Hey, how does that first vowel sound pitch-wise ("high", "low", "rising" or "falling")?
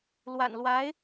low